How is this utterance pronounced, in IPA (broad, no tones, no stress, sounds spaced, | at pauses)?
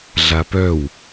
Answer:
ɮ a p œ w